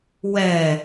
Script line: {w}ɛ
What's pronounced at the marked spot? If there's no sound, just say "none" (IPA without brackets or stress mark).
w